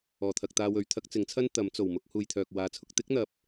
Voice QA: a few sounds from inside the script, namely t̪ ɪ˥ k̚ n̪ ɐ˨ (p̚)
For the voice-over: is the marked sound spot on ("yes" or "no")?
yes